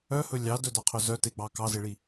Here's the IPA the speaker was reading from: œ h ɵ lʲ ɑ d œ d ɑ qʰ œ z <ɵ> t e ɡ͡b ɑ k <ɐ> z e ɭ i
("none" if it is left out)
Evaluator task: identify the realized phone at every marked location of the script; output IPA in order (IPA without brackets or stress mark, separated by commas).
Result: œ, ɑ